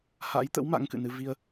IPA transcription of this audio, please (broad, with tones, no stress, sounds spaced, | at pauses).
h a̰˧˥ j t̪ ə̰˧˥ w m a̰˧˥ ŋ k ɨ̰˧˨ n ɨ˧ v i˧ ə̯